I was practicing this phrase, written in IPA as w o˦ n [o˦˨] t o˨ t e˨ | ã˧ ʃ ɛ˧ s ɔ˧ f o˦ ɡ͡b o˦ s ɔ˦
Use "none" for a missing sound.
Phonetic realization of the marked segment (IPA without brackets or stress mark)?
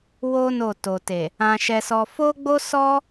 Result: o˦˨